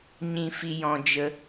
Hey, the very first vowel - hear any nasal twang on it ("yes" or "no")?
yes